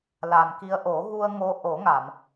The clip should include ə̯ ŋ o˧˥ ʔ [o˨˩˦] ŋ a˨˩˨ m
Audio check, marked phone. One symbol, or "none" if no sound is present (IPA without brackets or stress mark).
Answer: o˨˩˦